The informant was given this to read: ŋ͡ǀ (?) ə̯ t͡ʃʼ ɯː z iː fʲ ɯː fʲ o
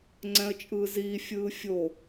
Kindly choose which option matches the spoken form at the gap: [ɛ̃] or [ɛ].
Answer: ɛ̃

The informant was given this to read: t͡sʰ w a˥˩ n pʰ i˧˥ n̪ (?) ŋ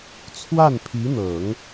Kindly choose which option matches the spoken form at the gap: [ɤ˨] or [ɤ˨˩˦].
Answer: ɤ˨˩˦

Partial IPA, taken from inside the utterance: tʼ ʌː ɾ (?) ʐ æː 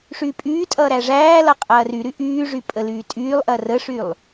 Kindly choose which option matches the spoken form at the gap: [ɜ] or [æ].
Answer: æ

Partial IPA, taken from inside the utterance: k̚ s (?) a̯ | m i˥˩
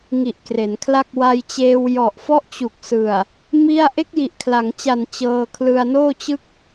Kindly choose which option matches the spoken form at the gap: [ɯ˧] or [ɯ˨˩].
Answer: ɯ˨˩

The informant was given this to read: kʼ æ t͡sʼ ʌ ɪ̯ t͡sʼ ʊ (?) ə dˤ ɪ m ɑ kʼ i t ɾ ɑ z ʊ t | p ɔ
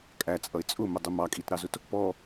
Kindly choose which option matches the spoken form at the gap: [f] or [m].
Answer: m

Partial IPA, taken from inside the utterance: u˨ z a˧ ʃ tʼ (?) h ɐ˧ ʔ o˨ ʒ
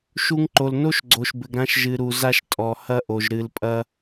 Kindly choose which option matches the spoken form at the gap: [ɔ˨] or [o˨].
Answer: ɔ˨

